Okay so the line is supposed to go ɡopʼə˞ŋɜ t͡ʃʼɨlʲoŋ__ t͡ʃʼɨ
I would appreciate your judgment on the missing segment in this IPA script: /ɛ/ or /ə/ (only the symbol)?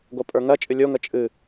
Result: ə